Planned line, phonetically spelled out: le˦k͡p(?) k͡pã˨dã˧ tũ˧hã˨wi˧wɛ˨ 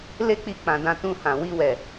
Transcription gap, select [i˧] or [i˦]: i˧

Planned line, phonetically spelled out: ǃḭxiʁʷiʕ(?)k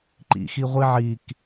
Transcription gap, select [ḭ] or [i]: i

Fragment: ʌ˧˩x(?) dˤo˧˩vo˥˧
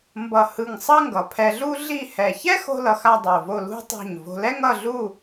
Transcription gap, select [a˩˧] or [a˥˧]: a˥˧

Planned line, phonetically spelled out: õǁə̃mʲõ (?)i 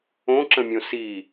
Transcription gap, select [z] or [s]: s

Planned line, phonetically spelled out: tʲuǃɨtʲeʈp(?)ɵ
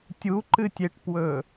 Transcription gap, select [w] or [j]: w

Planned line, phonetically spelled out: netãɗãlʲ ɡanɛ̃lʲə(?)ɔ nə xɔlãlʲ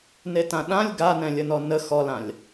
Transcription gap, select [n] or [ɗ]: n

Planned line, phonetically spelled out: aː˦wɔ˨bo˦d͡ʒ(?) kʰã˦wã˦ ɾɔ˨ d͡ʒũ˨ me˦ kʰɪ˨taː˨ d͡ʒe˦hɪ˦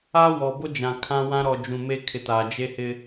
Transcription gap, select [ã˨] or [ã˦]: ã˨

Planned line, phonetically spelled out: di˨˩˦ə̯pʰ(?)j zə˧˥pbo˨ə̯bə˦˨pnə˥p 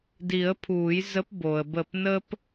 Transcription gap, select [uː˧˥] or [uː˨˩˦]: uː˨˩˦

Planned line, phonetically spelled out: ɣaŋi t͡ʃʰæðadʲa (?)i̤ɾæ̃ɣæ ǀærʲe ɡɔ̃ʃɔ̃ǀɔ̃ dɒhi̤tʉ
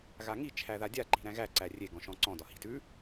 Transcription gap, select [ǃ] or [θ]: ǃ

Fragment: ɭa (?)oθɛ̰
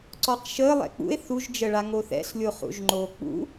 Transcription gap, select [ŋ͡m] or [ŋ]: ŋ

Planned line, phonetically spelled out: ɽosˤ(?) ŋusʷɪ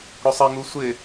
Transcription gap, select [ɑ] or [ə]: ə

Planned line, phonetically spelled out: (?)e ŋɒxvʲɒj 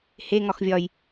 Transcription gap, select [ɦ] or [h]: h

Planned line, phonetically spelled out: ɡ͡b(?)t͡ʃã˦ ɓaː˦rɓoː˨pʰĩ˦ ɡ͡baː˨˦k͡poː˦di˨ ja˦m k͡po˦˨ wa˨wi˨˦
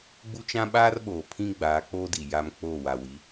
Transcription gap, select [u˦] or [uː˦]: u˦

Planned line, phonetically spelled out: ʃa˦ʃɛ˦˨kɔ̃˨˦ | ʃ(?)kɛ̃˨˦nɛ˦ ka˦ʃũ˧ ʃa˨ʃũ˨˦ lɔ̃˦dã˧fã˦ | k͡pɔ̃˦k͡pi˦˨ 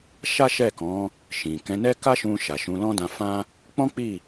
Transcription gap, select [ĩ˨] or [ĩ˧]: ĩ˨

